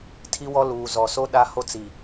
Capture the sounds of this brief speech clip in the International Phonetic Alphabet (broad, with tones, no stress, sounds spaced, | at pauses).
tʰ i˦ w ɔ˦ l uː˨ z ɔ˨ s o˦ ɗ a˦ h o˦ t͡s i˨